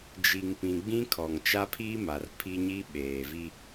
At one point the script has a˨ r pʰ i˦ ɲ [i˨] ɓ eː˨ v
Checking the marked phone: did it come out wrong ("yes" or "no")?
yes